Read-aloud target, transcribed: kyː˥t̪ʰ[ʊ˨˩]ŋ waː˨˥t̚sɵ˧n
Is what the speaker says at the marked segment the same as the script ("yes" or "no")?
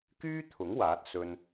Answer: no